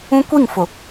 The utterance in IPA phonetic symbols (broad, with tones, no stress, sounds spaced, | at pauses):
ũ˦ kʷ i˦˨ ŋ f ʊ˨